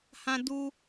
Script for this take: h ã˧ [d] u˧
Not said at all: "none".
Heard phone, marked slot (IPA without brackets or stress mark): d